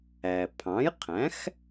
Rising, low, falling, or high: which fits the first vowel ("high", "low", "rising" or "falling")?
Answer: low